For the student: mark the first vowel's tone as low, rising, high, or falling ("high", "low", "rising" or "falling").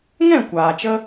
falling